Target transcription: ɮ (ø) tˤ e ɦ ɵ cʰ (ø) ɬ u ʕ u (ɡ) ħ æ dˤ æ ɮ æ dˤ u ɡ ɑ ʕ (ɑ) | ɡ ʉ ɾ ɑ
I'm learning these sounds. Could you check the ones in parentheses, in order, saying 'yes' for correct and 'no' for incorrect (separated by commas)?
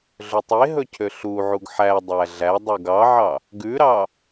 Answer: no, yes, yes, yes